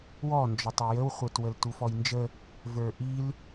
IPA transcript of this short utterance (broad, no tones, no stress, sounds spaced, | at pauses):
w ɔ n d͡ʒ ɔ tˤ i j ə w χʷ ə˞ t w ə l t u f ɔ j n d͡ʒ ə | v ə˞ ʔ i l